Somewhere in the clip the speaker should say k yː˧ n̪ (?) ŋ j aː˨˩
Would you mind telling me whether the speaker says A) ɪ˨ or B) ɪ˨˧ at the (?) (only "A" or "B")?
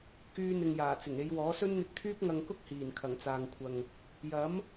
A